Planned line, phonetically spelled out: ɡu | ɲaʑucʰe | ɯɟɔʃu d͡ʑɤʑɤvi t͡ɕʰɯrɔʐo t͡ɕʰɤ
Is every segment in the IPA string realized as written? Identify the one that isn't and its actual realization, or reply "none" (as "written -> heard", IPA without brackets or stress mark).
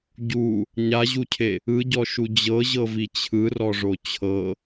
ɡ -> ɟ